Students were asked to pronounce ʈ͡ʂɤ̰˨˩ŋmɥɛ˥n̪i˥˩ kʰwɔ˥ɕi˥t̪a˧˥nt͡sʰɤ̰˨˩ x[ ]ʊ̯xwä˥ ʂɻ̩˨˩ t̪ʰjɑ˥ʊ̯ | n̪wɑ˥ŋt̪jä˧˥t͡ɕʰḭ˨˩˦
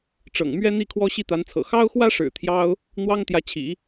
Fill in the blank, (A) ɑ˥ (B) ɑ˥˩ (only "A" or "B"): A